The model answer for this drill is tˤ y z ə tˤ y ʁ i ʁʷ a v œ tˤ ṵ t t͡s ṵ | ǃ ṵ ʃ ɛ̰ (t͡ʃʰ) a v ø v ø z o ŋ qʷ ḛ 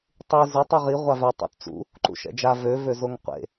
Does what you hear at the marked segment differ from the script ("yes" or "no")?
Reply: yes